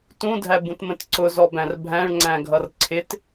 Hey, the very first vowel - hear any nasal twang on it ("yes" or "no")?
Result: yes